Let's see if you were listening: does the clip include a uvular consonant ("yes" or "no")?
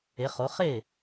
yes